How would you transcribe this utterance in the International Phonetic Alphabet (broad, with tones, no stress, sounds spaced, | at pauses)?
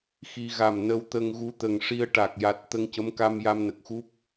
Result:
x i˧ ɣ a˨˩ m n ə˧ w t̪ ə˧ ŋ ɣ u˧˥ t̪ ə˨˩ ŋ ʂ i˧ ə̯ ʈ a˨˩ k̚ j a˨˩ t̚ t̪ ə˧ ŋ c ə˧˥ m k a˧ m j a˧ m n ə˨˩ k̚ x u˦˥ p̚